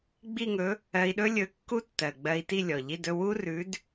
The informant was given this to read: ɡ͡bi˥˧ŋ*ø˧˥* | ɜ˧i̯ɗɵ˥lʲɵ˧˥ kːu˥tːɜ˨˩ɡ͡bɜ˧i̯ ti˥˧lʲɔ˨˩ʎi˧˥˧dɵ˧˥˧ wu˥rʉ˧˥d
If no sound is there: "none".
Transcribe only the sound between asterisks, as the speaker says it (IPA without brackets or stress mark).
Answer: ɵ˧˥